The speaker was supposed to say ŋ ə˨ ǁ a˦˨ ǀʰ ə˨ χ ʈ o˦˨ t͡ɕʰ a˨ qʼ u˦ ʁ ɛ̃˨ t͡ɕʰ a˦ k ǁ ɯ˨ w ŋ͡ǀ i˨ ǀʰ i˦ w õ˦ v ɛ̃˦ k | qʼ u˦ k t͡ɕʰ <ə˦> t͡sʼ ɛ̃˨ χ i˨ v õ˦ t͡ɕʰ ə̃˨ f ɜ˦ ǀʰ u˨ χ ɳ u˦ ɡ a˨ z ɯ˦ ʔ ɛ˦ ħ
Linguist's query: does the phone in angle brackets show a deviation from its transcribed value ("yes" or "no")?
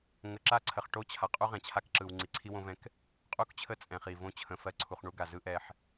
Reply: no